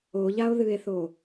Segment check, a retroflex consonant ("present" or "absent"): absent